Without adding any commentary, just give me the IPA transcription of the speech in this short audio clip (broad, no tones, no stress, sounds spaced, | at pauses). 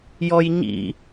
j ɔ j ɲ ḭ